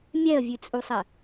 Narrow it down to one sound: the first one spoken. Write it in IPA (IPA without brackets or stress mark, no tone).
mʲ